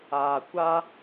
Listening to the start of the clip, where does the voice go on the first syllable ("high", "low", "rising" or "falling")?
low